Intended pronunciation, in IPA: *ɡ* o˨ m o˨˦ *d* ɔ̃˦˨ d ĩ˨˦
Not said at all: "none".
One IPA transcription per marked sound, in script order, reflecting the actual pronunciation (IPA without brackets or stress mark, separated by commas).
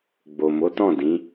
ɡ͡b, t